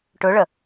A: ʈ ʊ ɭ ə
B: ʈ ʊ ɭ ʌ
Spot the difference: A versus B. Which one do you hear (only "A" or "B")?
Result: A